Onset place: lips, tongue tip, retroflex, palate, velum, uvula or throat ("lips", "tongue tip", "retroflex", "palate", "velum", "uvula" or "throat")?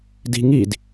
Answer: tongue tip